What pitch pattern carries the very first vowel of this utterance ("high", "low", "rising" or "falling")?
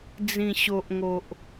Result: low